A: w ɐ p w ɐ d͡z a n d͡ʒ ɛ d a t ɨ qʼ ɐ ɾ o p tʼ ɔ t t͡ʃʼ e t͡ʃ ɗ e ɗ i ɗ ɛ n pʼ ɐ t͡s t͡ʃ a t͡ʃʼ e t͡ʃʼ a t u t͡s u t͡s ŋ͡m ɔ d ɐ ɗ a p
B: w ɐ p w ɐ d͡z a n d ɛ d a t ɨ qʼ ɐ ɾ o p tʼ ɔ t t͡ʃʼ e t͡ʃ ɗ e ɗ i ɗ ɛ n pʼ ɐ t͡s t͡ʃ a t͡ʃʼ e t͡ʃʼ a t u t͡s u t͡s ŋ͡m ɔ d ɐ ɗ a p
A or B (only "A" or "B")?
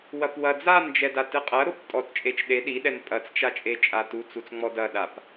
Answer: A